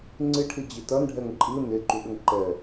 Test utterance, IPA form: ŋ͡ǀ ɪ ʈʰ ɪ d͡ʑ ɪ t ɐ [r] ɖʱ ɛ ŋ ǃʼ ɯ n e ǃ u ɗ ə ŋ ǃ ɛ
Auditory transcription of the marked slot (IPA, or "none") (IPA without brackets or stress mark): n